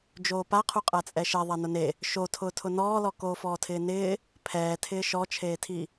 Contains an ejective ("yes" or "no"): yes